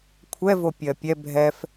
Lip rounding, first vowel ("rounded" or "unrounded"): unrounded